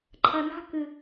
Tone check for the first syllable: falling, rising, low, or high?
low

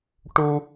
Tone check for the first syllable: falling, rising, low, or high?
high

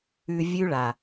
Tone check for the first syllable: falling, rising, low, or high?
low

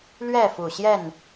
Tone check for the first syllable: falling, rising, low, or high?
falling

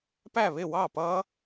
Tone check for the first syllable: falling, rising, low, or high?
falling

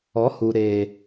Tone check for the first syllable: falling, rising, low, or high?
rising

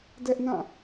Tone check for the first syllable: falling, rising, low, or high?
high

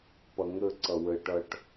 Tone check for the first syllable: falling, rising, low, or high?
low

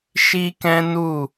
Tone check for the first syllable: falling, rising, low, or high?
high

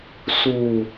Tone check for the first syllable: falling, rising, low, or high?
low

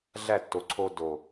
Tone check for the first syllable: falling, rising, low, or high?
falling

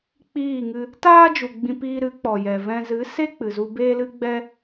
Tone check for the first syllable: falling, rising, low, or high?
falling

